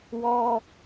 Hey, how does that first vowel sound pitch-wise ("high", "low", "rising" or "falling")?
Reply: high